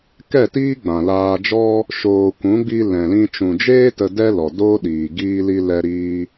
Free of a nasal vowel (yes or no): no